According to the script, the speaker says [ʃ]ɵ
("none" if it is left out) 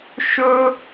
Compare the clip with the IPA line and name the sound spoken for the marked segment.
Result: ʃ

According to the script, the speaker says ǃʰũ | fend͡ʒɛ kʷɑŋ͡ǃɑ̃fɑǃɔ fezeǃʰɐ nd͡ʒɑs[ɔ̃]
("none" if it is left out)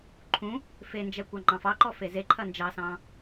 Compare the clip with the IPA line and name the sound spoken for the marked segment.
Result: ɑ̃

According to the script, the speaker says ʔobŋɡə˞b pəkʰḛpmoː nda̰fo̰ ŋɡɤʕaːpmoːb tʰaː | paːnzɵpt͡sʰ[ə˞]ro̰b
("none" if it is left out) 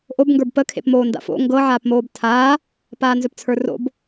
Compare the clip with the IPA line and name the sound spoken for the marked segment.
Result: ə˞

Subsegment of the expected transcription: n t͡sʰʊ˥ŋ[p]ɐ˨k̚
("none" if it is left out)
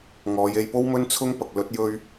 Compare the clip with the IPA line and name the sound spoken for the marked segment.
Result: p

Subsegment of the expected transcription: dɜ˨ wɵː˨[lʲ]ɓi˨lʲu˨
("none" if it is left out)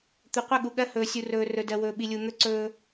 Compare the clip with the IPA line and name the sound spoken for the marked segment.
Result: none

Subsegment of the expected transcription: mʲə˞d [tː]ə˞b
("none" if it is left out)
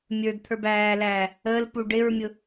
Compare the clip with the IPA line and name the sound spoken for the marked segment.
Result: t̪ʰ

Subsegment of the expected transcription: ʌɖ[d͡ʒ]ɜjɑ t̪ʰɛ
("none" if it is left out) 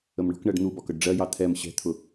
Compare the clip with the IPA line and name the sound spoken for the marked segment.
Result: ɖ͡ʐ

